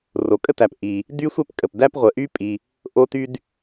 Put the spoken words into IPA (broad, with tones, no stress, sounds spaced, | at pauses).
r o˩ kʼ ə˥ t æ˩ p ʔ i˩ | d y˥ sʷ ɛ˥ p kʼ ə˩ p d æ˥ p ʁʷ ə˩ ʔ y˥ pʼ i˩ | ʔ o˥ t y˥ d